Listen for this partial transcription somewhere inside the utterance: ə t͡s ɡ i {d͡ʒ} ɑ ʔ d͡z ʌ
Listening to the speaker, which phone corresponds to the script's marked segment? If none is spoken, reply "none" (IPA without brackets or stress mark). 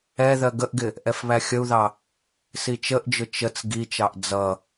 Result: t͡ʃ